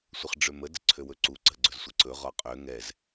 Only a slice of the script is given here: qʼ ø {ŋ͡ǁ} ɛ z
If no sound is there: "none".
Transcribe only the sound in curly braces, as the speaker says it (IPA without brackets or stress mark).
ŋ